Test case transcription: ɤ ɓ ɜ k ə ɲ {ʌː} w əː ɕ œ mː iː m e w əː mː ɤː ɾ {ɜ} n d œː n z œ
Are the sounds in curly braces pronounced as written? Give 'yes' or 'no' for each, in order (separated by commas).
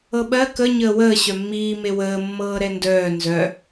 no, no